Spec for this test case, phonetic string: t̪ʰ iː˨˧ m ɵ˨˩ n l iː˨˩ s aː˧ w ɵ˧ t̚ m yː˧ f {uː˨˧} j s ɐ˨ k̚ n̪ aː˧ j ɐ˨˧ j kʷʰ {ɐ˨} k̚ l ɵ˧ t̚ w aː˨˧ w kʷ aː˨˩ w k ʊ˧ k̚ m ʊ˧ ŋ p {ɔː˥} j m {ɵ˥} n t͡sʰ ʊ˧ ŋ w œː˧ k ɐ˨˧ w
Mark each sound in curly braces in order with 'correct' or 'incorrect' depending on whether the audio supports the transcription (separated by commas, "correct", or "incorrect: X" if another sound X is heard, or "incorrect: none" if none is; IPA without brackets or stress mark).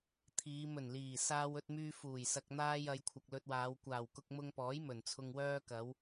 incorrect: uː˨˩, correct, incorrect: ɔː˨˥, incorrect: ɵ˨˩